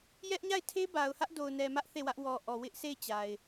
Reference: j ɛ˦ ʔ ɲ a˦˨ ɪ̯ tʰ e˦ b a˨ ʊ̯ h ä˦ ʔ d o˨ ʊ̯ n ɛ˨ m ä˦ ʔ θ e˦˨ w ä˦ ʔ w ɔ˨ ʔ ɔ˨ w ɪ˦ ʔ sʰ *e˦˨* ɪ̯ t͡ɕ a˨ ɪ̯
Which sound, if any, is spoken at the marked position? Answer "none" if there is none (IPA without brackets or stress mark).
e˦˨